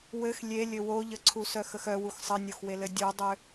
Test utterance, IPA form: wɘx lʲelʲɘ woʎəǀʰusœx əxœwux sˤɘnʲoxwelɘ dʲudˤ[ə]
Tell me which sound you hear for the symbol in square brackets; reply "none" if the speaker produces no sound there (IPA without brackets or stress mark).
ʏ